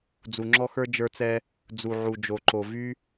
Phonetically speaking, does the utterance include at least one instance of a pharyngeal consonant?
yes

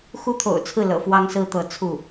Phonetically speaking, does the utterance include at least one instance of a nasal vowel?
no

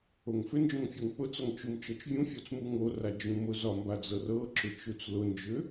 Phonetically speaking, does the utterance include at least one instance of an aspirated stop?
no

